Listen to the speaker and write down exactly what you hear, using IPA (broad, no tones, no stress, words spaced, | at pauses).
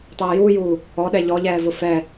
tˤɛːjuːjuː | ɔɗɛ ʎɔʎɛːvʊ fɛ